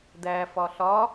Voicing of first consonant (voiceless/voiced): voiced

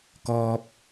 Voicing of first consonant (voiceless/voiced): voiceless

